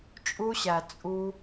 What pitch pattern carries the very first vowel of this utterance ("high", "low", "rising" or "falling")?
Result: high